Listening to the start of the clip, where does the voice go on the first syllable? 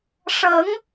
rising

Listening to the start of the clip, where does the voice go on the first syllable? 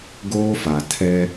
high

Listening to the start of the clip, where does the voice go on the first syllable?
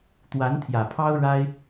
rising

